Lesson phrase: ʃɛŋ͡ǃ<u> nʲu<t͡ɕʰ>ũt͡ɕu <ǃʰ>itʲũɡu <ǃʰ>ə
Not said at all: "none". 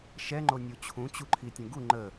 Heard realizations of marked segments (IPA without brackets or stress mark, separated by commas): o, t͡ɕʰ, ǃʰ, ŋ͡ǃ